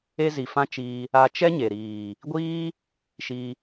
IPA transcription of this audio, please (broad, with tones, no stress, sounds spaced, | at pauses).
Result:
e˦ z i˨ f ã˦ t͡ʃ iː˧ | a˧ t͡ʃ ɛ˦ ɲ e˨ ɾ iː˨ | ɡʷ iː˦ | ʃ i˧